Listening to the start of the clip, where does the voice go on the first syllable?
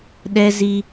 high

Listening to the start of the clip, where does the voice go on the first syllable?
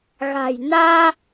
low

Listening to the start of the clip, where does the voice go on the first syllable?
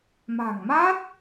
low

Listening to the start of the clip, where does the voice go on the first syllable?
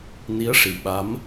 rising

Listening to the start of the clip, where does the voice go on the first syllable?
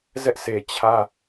high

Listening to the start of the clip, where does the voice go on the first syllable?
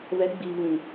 rising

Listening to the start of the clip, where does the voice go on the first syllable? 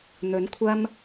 rising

